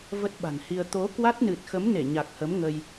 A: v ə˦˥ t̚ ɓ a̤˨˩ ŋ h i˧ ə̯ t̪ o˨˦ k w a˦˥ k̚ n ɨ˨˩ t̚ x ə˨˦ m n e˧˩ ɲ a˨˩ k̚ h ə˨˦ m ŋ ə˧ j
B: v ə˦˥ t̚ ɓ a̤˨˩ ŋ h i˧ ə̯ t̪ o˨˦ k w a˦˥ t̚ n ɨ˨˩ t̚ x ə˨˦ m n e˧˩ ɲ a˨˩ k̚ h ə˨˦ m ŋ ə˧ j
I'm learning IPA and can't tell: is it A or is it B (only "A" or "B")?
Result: B